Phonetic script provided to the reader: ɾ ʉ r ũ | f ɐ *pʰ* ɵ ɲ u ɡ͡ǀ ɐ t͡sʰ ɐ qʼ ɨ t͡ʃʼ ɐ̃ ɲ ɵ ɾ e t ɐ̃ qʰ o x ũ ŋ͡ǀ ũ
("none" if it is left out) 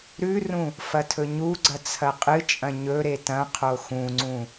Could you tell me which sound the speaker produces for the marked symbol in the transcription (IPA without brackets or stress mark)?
tʰ